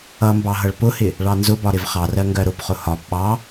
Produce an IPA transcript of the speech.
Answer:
ʌmbɑ ɦʌɭpʊhɪ | ɭɑnzʊbɒ ɾɪvχɑrɜ ŋɡɜɾʊpχʊ hɒb ɓɑ

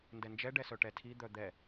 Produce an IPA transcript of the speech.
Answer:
ndɛnd͡ʒɛɖɛsœ ʈɛtʰi d̪œd̪ɛ

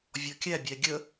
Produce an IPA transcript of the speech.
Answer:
vʲɔkʲæ bʲæɡʲə

